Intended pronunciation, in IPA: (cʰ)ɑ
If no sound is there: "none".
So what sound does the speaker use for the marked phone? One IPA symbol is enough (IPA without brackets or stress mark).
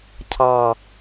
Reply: cʰ